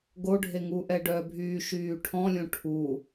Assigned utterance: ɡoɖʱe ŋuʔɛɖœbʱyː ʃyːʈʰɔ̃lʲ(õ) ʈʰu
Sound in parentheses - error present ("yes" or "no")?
no